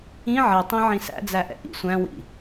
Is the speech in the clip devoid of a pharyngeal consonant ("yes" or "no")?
no